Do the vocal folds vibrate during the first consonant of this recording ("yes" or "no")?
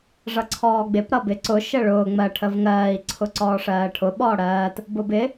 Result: yes